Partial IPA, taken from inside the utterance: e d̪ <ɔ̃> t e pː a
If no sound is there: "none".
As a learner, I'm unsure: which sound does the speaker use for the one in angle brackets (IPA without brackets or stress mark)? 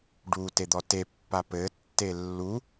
ɔ